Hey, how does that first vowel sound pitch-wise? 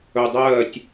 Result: low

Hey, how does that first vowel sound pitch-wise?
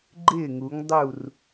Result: falling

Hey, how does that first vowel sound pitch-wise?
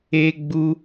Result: high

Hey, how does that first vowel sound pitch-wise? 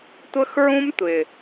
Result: high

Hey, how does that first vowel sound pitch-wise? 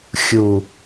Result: low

